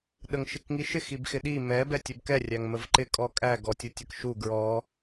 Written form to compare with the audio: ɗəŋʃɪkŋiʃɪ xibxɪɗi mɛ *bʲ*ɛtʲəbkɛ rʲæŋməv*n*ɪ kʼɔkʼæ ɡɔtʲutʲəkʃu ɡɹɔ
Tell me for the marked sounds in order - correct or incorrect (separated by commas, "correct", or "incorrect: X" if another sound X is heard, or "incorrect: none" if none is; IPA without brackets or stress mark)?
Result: incorrect: b, incorrect: ǃ